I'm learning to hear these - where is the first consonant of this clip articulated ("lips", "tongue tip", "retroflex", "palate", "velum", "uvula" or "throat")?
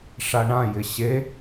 retroflex